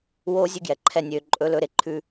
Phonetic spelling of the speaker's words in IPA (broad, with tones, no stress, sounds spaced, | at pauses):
w oː˦ zʲ ʉ˦ ɡ j ɛ˨ ǃʰ ɛ˦˨ nʲ øː˨ ǃʼ ɵ˨˦ l ɵ˨˦ ɾ e˨ ǃʰ ʉ˦